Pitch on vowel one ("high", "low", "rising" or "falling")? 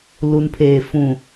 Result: low